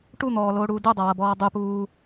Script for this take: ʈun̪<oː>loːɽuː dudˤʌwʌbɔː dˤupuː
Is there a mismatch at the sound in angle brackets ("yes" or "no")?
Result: yes